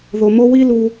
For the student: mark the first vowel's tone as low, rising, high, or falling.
low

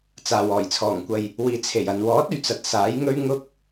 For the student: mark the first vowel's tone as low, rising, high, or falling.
low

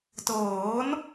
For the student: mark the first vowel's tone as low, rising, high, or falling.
rising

